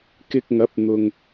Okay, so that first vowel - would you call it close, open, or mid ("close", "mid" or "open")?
close